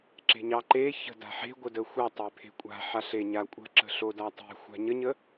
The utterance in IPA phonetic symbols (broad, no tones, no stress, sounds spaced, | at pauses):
ǁ e̤ ɲ ɑ ǃ e ç ə̤ d a̤ ħ e̤ ɡʷ ə d ə xʷ ɑ tˤ e pʰ e̤ kʷʼ a̤ ħ a ɬ e ɲ a kʷʼ ə̤ ǁ ə̤ ɬ o d a tˤ e̤ xʷ a̤ ɲ ə ɲ ə